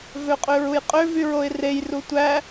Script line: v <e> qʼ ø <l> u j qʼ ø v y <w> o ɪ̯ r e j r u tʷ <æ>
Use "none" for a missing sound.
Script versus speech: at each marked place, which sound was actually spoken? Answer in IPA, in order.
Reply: ø, ɹ, ɹ, æ

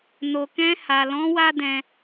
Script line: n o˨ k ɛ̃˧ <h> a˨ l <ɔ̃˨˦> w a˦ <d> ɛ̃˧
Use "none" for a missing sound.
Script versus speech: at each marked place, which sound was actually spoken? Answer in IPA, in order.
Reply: h, ɔ̃˨˦, d

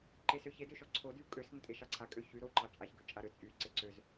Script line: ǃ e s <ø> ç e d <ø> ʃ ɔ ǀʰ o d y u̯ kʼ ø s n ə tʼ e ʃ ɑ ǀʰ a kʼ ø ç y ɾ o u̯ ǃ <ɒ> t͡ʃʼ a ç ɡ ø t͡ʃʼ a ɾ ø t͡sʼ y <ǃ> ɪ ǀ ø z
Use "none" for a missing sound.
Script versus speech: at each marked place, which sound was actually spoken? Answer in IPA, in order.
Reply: ø, ø, ɑ, ǀ

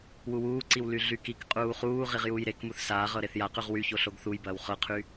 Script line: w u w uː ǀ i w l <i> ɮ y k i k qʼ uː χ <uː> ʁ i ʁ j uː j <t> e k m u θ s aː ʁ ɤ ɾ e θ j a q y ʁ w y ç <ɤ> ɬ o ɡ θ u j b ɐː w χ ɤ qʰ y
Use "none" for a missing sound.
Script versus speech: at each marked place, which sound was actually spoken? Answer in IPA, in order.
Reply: y, uː, ɾ, o

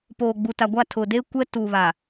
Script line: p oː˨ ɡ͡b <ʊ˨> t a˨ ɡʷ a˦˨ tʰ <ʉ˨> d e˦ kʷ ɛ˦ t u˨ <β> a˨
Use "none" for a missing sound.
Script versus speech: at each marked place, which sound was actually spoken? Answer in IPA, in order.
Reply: u˨, ʊ˨, β

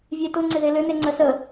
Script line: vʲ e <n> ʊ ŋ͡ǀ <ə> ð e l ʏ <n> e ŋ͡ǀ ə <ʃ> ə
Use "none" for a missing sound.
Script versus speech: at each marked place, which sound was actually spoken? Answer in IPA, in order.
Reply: t, ɪ, n, s

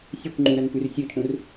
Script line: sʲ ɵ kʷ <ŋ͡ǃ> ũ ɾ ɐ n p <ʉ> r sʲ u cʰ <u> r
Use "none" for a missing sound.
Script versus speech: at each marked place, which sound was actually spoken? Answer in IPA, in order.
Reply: ŋ͡ǃ, ʉ, ũ

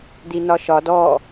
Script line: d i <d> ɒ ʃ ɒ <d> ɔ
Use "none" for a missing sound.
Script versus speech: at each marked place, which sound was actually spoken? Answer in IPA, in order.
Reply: n, d

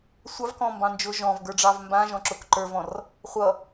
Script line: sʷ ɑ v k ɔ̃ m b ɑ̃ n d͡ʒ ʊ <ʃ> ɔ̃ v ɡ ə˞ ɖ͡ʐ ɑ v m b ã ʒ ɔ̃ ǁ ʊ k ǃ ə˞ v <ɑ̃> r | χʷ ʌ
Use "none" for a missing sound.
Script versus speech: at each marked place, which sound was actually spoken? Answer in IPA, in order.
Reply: ʒ, ɔ̃

